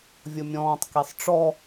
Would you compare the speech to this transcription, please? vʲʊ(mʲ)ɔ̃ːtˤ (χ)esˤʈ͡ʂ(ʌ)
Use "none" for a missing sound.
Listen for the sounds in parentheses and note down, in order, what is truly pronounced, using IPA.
mʲ, k, ɔ

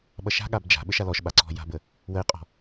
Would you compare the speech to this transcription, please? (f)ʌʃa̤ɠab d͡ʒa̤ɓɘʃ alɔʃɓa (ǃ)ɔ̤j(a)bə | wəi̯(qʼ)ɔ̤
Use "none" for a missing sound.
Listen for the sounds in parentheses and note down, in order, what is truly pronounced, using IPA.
ɓ, ǀ, a̤, qʼ

